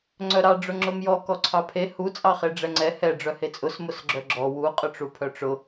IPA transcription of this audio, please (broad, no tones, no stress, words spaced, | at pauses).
ŋ͡ǀœɾɑ ɖ͡ʐʊŋ͡ǁʊmjɔ kɔǀʰɑpʰe hu t͡sʼɑχeɖ͡ʐɛŋ͡ǀɛ hɛ ɖ͡ʐœhet͡sʼʊs mʊsɡ͡ǁœɡ͡ǁɔ wu qʼʊʈ͡ʂupʰœʈ͡ʂʊ